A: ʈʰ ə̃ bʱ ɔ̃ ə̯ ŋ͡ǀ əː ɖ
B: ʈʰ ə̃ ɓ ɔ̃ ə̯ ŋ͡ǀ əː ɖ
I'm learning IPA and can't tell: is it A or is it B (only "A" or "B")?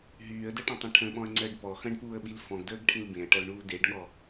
B